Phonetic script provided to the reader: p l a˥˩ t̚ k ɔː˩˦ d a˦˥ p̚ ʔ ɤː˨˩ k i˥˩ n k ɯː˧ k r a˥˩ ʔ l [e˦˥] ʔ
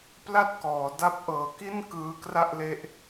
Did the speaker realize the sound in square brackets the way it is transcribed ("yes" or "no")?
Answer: yes